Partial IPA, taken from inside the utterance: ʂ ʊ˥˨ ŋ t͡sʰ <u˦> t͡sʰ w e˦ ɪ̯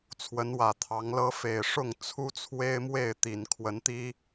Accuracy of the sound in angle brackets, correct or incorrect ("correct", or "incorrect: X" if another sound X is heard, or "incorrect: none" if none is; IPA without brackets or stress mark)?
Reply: correct